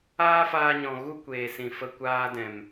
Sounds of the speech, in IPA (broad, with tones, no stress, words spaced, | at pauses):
aː˦faː˧ɲɔ̃˨ ɣu˦kʷeː˨sĩ˨fə˧ kʷaː˧dɛ̃˨m